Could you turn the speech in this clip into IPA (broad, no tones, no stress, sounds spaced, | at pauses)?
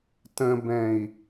t ə̃ b ɛ̃ i̯